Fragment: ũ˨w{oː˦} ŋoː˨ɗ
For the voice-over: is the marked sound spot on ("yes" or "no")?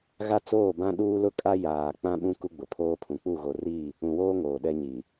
yes